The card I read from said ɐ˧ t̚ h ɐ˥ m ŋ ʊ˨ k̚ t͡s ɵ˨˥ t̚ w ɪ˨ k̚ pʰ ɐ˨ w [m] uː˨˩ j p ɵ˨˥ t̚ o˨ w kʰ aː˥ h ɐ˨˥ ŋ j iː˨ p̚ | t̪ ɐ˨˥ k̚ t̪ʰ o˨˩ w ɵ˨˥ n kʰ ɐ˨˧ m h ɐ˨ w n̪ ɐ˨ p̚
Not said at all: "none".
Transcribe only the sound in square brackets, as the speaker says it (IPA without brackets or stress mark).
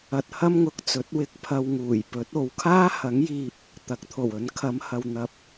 ŋ